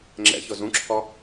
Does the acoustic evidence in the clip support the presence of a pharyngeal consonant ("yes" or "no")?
no